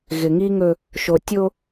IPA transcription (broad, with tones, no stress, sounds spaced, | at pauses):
ɣ ɪ˨ ŋ i˦ ŋ ɵ˦ | ʃ o˨ tʲ o˦